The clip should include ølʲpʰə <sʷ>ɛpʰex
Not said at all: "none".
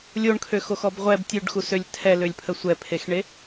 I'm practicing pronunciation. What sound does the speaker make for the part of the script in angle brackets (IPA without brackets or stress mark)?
sʷ